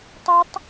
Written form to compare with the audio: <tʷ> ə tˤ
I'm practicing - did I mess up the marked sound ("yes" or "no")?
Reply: yes